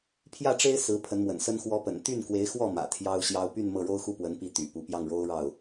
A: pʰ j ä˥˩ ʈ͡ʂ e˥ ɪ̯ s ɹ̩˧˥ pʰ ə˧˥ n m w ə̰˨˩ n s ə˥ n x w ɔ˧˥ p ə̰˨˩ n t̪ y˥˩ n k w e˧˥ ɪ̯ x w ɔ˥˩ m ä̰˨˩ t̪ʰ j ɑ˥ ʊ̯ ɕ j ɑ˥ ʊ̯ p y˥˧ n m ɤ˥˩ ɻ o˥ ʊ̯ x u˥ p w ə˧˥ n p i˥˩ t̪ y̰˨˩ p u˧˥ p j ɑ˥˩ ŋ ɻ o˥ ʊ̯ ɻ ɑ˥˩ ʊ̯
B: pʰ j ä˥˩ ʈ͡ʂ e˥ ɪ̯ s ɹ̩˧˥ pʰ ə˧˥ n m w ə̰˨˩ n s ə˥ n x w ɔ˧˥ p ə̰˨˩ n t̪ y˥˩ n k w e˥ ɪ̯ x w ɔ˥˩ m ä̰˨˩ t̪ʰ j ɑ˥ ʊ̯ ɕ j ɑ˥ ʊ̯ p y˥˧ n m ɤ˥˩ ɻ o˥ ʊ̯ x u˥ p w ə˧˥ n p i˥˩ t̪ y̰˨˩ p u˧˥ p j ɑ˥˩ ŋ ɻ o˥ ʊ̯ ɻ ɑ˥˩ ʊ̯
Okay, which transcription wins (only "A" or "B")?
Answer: A